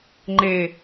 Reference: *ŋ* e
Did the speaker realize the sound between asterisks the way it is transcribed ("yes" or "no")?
no